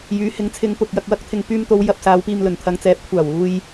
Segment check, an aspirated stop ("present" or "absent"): present